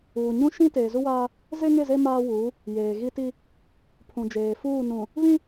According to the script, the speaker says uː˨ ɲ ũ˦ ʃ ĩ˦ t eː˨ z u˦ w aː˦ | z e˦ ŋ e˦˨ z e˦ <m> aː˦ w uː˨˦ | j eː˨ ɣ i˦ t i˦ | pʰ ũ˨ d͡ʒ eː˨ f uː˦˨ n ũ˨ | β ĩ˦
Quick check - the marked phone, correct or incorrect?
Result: correct